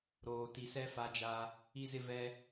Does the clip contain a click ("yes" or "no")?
no